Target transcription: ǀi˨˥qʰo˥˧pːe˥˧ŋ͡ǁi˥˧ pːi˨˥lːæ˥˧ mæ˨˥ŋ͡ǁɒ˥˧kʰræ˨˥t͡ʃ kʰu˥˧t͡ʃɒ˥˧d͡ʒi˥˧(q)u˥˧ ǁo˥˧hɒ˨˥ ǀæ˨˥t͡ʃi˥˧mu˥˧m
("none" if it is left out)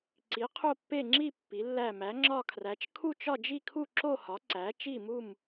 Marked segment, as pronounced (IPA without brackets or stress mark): kʰ